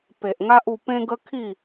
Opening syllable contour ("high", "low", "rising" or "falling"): low